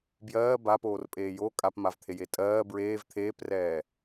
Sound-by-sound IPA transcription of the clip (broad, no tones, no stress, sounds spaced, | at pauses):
b j ɜː b a p oː r pʼ eː j o kʼ a p m a v t̪ʰ e j e tʼ ɜː b ɹ eː v t̪ʰ eː p r ɛː